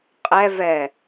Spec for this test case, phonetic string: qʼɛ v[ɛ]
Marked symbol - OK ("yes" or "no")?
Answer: yes